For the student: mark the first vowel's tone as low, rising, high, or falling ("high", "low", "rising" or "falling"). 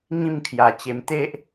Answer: falling